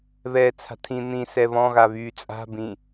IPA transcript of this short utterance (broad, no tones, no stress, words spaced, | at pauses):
βɛːt͡sʰa̤tʰĩ n̪ĩ sɛβɔ̃ ɣaβyːt͡sʼa̤ bĩ